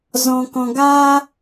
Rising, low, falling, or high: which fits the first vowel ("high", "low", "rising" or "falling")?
low